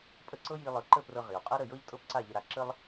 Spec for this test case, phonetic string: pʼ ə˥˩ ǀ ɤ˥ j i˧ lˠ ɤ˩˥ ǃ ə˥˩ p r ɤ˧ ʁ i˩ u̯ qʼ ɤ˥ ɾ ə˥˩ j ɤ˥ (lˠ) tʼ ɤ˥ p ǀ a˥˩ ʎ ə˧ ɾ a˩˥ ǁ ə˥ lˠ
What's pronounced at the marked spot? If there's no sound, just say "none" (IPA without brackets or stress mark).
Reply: ʎ